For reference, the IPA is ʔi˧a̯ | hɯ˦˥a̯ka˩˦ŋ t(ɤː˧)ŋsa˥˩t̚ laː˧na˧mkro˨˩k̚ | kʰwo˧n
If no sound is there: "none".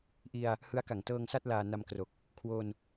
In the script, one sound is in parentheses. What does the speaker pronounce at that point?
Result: ɤː˧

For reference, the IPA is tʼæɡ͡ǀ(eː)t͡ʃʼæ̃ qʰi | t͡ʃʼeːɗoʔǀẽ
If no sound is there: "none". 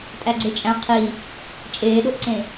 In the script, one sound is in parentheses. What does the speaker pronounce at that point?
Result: e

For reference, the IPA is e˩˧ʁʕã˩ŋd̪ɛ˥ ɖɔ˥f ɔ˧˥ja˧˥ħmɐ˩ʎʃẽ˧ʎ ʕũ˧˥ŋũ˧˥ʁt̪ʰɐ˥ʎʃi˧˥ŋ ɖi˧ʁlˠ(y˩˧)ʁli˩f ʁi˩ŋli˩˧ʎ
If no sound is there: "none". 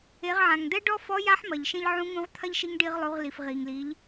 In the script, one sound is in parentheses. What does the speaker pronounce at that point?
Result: u˩˧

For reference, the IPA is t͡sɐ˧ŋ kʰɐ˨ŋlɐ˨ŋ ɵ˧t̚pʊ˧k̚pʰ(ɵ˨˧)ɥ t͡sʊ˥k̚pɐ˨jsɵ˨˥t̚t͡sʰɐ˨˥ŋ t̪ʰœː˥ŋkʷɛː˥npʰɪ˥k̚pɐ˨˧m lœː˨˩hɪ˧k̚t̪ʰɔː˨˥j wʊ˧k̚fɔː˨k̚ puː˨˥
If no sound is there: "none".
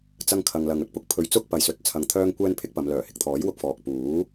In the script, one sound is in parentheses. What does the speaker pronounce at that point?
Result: ɵ˧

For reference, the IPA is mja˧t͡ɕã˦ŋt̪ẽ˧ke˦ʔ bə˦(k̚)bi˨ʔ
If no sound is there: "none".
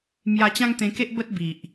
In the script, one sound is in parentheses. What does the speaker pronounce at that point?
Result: t̚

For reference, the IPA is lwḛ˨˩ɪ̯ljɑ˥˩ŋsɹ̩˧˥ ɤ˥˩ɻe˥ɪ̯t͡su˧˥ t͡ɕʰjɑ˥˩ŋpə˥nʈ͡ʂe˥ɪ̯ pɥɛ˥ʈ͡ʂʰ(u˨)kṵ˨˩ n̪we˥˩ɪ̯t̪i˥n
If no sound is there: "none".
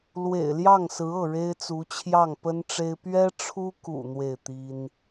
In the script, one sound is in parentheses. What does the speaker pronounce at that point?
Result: u˥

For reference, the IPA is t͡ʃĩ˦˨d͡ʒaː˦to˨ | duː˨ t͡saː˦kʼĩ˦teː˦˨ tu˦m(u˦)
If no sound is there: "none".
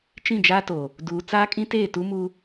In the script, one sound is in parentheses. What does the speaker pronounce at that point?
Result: u˦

